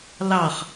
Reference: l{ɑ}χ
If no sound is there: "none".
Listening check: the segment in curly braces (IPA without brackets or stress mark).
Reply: ɑ